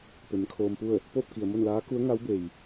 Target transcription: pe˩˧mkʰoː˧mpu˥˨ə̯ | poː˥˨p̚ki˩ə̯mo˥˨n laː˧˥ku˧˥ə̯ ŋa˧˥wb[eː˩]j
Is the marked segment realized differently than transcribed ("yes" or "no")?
yes